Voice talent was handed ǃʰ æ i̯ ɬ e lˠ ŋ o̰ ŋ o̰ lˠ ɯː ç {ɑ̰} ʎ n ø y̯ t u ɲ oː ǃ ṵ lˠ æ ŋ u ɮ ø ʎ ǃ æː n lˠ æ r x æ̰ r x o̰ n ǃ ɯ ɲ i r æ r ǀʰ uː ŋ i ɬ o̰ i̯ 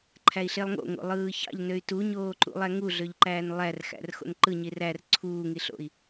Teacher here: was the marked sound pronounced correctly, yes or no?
yes